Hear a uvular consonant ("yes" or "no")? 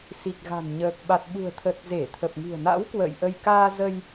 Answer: no